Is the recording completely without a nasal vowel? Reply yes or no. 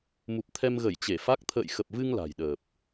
yes